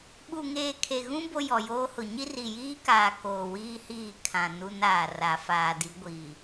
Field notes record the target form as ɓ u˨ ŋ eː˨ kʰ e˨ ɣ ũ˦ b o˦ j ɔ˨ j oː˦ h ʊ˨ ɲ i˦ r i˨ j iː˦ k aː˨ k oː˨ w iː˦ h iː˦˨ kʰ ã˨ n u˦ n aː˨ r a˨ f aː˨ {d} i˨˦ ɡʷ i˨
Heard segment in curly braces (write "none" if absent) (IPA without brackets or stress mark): d